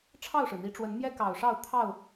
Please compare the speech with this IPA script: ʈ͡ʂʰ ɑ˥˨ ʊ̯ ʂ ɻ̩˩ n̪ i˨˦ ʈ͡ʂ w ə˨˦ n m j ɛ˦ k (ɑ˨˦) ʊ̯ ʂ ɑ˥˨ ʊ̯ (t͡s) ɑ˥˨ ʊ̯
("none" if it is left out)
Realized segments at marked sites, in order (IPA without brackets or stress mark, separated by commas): ɑ˨˩, t̪ʰ